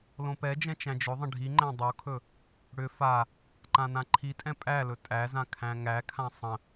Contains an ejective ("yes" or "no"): yes